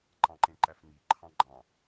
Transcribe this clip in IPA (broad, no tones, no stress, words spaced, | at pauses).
ǃɑ̃ǃẽǃæfŋi ǃʰɑ̃ɡ͡ǃɑ̃